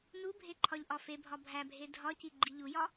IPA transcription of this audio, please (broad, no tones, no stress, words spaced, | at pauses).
nubʱe ǃʰɒʎʔɒfebʱɒ bʱæbʱe dʱɒci ɡ͡ǃiʎujɒ